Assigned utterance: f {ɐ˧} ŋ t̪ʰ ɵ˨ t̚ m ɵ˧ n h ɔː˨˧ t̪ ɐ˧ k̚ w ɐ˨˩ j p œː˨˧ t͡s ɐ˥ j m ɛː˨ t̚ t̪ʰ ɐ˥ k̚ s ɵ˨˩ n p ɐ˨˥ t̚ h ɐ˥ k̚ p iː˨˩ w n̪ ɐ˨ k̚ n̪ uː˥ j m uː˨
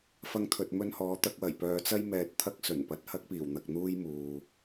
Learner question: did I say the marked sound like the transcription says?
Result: yes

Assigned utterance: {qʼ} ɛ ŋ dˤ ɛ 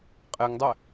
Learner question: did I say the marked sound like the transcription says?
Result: yes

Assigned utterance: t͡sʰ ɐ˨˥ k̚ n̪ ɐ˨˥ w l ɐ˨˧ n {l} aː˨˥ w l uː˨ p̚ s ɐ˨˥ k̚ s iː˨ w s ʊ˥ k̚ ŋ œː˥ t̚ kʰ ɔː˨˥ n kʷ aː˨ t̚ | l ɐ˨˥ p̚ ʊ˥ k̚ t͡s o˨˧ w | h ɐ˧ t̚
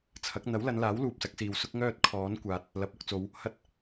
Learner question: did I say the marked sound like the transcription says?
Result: yes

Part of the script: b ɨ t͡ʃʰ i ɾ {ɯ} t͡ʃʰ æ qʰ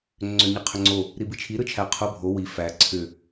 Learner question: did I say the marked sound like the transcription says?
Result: yes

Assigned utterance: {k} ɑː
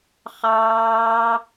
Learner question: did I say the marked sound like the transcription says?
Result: no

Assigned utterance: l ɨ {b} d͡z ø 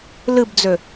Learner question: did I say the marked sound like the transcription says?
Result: yes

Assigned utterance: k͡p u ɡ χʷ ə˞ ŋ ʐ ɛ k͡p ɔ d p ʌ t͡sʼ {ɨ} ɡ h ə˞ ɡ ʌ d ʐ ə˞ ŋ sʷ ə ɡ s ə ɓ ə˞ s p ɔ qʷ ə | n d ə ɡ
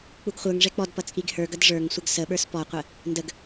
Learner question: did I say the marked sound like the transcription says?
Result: no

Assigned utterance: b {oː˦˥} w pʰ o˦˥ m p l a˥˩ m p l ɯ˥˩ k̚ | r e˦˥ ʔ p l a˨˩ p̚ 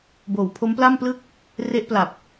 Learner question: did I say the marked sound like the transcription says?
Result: no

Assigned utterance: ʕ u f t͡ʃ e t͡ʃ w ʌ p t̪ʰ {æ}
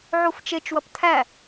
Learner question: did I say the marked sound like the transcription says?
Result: yes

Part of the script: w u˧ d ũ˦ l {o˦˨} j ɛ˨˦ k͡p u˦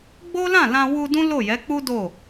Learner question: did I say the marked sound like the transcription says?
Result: yes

